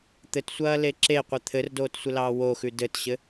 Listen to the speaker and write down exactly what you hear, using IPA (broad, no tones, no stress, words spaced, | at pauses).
t̪ɘtsʷɐːle ǁeqʷɘ t̪ʰɘrdoːtsʷɘlɑː woxʉ dɘtɕɘ